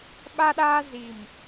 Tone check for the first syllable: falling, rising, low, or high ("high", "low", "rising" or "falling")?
high